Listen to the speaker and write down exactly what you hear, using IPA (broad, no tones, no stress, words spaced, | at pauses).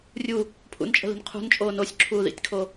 rʲu | pʰṵnt͡ʃʼə̤li̤n qʰṳnt͡ʃʼoː nosʲǁʰuːðḭtʲkʰo